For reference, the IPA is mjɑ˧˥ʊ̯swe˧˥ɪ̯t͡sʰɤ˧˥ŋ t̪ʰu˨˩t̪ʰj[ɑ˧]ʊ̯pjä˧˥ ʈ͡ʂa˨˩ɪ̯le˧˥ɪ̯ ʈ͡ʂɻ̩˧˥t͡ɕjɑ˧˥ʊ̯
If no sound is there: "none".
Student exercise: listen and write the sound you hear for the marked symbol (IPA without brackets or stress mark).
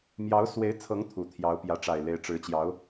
ɑ˧˥